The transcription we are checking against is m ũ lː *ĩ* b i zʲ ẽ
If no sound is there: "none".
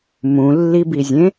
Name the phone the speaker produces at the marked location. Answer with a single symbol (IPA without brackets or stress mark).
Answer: i